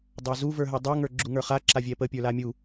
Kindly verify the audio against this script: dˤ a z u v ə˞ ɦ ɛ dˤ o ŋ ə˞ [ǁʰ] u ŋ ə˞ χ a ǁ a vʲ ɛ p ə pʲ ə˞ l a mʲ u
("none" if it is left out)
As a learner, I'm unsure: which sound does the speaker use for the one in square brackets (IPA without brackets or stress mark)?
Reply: ɡ͡ǁ